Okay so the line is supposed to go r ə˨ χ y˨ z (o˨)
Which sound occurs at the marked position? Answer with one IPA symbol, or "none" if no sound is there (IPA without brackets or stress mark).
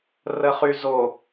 o˨